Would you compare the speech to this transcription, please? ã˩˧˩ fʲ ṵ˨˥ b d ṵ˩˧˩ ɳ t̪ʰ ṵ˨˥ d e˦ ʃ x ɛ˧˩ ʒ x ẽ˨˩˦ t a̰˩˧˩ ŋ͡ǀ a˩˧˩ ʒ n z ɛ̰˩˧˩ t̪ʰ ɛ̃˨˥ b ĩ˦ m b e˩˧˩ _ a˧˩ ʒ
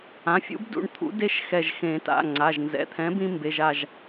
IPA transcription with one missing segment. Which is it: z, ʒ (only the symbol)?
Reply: ʒ